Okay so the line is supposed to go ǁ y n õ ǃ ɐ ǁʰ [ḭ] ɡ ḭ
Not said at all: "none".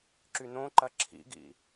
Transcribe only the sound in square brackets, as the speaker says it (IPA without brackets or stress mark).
ḭ